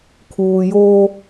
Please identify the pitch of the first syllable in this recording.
low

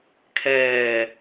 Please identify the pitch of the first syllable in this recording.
low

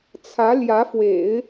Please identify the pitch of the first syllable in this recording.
rising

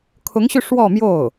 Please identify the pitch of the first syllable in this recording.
rising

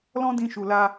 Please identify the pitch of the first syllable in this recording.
high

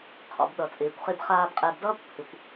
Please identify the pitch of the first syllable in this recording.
low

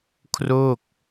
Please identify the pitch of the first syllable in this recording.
falling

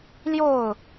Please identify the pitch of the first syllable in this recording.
falling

